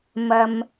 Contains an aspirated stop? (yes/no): no